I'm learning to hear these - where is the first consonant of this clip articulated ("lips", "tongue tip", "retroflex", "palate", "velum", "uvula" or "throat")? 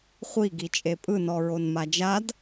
uvula